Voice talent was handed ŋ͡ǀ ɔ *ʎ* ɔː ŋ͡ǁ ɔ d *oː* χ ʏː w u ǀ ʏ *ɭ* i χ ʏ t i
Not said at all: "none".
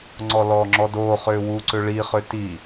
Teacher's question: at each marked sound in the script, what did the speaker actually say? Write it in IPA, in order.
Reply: l, oː, ɭ

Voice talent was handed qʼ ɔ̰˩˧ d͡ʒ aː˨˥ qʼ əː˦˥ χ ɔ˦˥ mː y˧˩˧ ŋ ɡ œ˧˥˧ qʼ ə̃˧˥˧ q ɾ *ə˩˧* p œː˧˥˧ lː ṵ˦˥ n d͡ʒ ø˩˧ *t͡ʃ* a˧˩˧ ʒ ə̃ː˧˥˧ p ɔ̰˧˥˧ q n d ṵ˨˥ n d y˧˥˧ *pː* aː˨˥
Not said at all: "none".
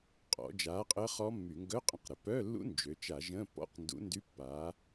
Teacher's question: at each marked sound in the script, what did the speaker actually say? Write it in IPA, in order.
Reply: ə˩˧, t͡ʃ, pː

